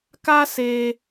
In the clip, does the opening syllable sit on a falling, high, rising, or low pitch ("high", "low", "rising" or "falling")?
high